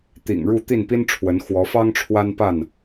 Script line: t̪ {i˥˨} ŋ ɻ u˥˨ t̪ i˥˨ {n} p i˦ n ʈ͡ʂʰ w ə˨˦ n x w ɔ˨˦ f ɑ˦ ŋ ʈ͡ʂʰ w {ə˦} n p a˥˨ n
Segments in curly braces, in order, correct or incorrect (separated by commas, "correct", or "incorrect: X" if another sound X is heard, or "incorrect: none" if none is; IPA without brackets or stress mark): incorrect: ḭ˨˩, correct, incorrect: a˦